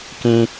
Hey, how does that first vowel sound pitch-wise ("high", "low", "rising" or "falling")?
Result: high